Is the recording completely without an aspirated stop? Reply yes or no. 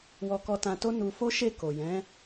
yes